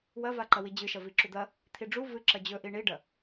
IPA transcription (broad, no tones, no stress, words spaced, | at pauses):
wɐva ǃɐwid͡ʑɨʃɐ viǁud̪ɐ | t̪ʰiɖ͡ʐu vɨ ǁɐd͡ʑɵʔi ɳiɖɐ